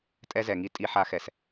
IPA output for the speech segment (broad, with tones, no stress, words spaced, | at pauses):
tʼɛ˧zɛ˩ŋi˧ tʼi˧ħa˧ xɛ˩s